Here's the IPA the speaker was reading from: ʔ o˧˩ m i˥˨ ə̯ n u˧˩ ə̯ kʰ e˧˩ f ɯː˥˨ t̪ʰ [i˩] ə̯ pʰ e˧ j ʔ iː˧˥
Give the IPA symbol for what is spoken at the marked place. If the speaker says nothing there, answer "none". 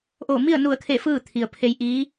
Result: i˩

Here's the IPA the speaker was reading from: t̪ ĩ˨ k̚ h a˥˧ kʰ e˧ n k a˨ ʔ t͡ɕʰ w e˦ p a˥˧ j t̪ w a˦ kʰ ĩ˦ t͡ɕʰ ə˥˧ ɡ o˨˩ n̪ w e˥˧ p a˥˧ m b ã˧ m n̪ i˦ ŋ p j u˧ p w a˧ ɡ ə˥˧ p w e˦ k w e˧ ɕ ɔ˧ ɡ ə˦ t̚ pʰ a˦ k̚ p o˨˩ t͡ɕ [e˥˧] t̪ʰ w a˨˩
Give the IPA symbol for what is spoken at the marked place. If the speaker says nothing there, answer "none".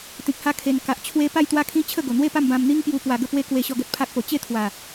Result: e˥˧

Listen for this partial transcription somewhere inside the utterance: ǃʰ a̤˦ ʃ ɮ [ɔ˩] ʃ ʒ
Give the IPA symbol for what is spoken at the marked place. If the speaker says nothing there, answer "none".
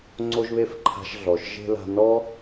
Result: ɔ˩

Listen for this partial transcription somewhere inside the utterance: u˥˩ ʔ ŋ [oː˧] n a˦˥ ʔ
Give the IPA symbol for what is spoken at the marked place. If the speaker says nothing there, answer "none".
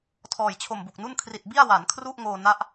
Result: oː˧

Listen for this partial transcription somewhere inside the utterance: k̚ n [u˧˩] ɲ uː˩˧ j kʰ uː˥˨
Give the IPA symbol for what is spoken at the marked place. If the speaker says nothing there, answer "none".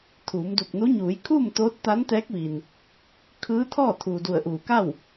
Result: u˧˥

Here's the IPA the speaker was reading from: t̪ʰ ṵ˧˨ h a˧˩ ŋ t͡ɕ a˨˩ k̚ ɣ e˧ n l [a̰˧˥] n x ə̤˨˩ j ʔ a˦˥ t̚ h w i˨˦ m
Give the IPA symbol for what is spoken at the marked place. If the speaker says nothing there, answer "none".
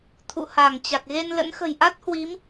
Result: ə̰˧˥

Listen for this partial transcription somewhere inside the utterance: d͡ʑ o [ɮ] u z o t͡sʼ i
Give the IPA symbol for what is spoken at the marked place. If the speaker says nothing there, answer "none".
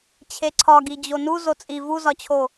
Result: n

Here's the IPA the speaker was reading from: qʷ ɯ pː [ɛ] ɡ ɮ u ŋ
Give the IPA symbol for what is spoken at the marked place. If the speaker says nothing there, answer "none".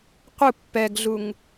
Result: ɛ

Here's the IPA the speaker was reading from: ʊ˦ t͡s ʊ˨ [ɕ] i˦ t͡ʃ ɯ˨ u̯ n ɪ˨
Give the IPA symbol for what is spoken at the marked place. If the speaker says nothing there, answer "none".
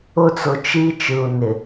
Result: t͡ʃ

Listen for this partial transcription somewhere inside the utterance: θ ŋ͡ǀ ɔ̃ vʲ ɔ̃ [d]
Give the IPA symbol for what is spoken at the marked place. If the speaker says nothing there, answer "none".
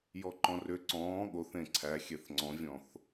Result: θ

